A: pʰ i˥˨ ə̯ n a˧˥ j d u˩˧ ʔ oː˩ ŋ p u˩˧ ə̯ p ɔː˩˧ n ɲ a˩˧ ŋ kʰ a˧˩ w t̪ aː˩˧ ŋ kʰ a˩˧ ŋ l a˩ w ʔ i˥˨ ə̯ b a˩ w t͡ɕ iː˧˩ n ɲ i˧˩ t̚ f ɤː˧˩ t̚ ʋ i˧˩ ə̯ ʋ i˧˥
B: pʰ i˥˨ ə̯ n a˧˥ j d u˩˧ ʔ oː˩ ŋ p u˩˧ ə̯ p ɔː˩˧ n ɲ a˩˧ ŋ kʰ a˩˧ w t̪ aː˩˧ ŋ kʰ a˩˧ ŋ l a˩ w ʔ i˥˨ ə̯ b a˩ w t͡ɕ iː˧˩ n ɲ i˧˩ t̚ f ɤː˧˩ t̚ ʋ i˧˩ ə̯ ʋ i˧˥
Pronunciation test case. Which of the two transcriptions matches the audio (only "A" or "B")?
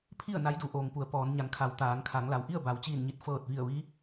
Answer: B